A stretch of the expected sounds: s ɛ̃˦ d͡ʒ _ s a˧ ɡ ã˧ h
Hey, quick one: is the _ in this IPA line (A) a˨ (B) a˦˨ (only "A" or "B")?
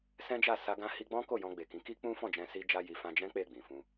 B